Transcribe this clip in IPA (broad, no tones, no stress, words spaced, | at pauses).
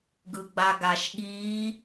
ɡɯɡ͡baɡaʃɠi